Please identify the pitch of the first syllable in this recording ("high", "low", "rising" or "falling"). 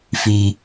low